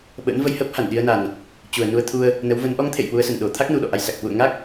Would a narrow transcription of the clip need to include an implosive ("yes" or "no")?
yes